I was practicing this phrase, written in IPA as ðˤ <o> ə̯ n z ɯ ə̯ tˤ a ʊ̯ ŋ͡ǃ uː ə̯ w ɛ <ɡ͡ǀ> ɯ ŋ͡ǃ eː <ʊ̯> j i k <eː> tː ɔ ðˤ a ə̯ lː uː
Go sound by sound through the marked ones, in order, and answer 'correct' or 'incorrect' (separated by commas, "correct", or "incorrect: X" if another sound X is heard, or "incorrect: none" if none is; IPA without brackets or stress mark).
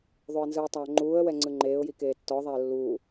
correct, incorrect: ŋ͡ǀ, correct, correct